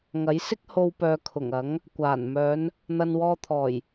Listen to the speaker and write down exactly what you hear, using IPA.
ŋ ɐ˨˥ j s ɪ˥ k̚ h o˧ w p œː˨ kʰ ʊ˨˩ ŋ ɐ˨˥ ŋ | kʷ aː˨˩ n m œː˨˧ n | n̪ ɐ˨ n w ɔː˧ t̪ʰ ɔː˨˩ j

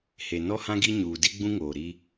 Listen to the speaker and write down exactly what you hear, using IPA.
h e˨ n ɔ˦ h ã˦ ɡ i˦ ɲ uː˨ d i˦ ɡ͡b ũ˦ ŋ oː˨ ɾ i˦

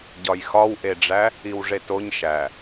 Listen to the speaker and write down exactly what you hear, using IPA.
ɟ ɒ j x ɒ w ʔ e ɖ͡ʐ æ | i w ʐ e t o ɲ ʃ æ

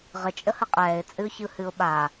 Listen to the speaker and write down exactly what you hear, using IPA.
ʁ ə t͡ʃʼ ə h ə qʼ ɛː ɪ̯ t͡sʼ ɨ ʊ̯ ç ɯ h ɨ ʊ̯ ɓ a

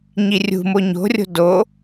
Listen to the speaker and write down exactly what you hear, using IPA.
ɲ i rʲ ṳ m o ɲ o̤ rʲ o̤ d o

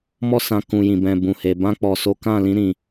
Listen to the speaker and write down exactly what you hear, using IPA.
m ɔ˦ s ã˧ k ũ˨ j ĩ˨ b ɛ̃˨ b ũ˨ h e˨ b ã˧ k͡p ɔ˨ s o˨˦ k ã˦˨ l ĩ˧ ɾ ĩ˨

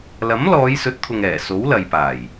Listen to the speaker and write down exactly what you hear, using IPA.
l ɐ˨˥ m l ɔː˨˧ j s ɵ˨˥ t̚ t̪ʰ ʊ˨ ŋ ɛː˨˩ s o˨˥ w l ɐ˨ j p aː˨˩ j

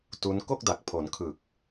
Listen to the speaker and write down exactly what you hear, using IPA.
t u˦˥ n k o˥˩ k̚ d a˨˩ k̚ pʰ o˩˦ n kʰ ɯ˨˩ k̚

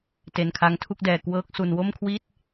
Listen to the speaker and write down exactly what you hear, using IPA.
t e˧ n kʰ a˦˥ ŋ tʰ u˥˩ k̚ d ɛː˧ k w ɤː˦˥ k̚ s u˧ n w o˥˩ m kʰ w i˥˩ t̚

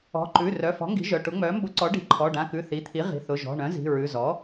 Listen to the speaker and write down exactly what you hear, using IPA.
ɔ̤˩˧˩ ǃ ʉ˩˧˩ r œ˩˧˩ f ɔ̤˩˥ ŋ ɡ i̤˩˥ ʒ œ˩˧˩ ʈ ʊ˩˥ ŋ͡m œ˩˥ m b ʊ˩˥ ǀ ɔ˩˥ ɖ i̤˩˥ ǃʰ ɔ˩˧˩ ɖ ã˩˧˩ k ʉ˩˧˩ θ i˩˧˩ t̪ʰ i˩˥ ʁ i̤˩˧˩ θ ʊ˩˧˩ ʒ ɔ̤˩˧˩ ɳ œ̃˩˥ z i̤˩˧˩ ɹ ʉ˩˧˩ z ɔ˩˥

